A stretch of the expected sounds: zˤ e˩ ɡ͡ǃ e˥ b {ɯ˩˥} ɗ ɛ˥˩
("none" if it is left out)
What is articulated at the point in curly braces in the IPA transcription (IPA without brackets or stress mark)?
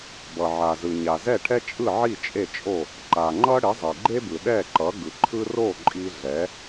ɯ˩